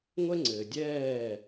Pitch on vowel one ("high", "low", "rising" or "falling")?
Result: high